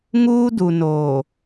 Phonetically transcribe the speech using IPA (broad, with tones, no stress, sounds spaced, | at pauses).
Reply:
ŋ uː˦ d u˨ n oː˨